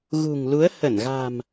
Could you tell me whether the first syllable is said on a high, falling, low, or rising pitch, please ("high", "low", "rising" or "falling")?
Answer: low